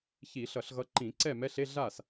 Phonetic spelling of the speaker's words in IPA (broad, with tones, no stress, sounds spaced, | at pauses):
ç i˧˩˧ ɬ ʌ˧˩˧ ɬ ɣ ʌ˨˦ ǃ ĩ˧˩˧ ǀ ɛ˥˩ m ɛ˧˥˧ ɬ e˧˥˧ ɮ a˥˩ s